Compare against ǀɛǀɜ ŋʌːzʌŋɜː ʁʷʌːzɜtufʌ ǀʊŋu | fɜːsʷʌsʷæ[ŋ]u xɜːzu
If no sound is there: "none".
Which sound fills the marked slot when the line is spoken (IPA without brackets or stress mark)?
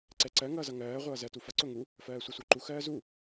ǃ